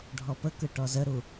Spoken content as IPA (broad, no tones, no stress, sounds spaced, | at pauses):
ɖʱ ɔ p ə k ɯ ʈ ɔ z ə ɾ u